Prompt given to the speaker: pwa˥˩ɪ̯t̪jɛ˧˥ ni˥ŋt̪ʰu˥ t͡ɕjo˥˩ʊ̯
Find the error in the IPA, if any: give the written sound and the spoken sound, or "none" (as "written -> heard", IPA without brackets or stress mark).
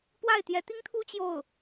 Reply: n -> t̪